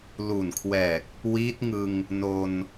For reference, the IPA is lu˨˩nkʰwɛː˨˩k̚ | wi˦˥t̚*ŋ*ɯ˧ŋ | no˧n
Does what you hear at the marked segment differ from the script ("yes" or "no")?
no